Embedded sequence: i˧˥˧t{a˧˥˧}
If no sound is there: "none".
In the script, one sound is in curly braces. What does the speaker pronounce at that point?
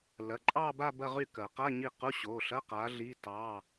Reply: ɑ˧˥˧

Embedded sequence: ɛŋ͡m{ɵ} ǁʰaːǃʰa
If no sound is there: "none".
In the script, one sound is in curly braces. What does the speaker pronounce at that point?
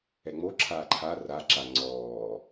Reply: o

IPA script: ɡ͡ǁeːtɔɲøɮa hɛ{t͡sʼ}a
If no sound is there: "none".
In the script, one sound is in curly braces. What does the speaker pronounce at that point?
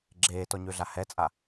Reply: t͡sʼ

